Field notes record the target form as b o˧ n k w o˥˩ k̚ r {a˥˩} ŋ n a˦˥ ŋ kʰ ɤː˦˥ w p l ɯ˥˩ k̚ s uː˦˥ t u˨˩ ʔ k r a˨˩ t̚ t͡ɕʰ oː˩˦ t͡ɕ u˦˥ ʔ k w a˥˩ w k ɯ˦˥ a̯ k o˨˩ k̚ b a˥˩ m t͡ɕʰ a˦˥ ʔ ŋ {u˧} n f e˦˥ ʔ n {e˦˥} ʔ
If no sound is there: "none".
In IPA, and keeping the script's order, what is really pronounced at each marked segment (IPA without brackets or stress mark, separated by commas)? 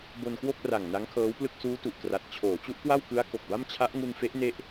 a˨˩, u˧, e˦˥